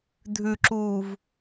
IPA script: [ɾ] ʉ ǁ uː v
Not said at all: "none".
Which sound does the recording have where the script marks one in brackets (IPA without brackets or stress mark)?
dʱ